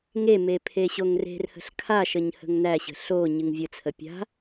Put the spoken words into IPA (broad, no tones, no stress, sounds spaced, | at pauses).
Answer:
ŋ e m e pʰ e ɕ o ŋ r e̤ r h ə̤ ɬ kʰ a ʃ ə ɲ h ə̤ ŋ n æ ɕ ə̤ ɬ o ɲ ɨ ŋ vʲ ə t͡sʰ ə pʲ a̤